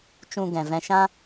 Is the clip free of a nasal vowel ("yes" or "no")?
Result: no